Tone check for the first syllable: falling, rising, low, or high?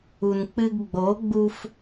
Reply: low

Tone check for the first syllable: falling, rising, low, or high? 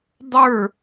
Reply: falling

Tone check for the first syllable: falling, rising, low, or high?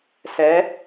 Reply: rising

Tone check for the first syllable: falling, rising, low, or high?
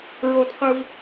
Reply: high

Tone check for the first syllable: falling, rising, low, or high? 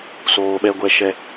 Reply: low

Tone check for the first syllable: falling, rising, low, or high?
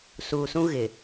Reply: low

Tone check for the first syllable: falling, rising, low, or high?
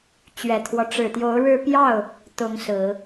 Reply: low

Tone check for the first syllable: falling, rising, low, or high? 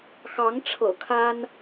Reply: rising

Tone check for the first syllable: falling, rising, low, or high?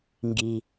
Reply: low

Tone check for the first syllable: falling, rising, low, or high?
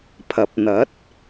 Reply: rising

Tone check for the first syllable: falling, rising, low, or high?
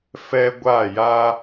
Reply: high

